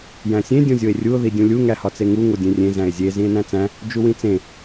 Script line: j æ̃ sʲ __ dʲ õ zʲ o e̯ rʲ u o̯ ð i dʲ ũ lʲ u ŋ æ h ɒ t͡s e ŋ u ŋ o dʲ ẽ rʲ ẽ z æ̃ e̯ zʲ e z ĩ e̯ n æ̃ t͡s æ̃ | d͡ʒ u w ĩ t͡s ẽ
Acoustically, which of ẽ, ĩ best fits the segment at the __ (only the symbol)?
ẽ